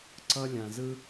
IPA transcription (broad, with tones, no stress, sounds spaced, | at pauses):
ǀ ʌ˧ lʲ ã˨ z ɯ˧